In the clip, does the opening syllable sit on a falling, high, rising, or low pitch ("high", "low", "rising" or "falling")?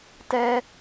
high